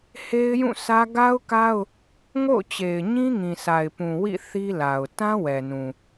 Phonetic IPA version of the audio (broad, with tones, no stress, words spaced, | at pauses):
he˦ɪ̯jũ˦˨sä˦ ɡa˦ʊ̯ka˦ʊ̯ | ŋo̰˦˨ʊ̯t͡ɕe˨ɪ̯ ɲĩ˦ŋĩ˨sa˨ɪ̯pũ˨ wḭ˦˨ θi˦la˨ʊ̯ tã˦ wɛ˨nũ˨